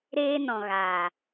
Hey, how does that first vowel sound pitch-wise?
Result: high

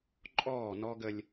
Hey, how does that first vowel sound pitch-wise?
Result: falling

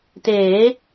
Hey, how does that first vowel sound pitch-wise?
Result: rising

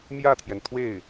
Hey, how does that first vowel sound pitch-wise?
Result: falling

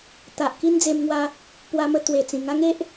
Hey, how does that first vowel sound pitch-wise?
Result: low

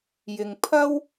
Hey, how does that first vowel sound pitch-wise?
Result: low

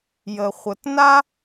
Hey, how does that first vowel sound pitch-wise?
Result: low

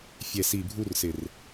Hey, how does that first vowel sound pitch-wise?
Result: low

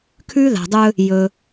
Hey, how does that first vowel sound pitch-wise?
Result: high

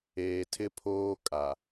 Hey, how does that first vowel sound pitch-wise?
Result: low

